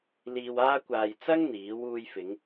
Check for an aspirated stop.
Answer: absent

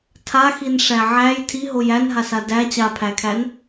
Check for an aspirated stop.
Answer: present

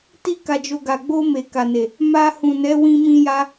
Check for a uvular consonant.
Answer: absent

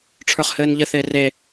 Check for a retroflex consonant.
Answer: present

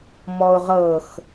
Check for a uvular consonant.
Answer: present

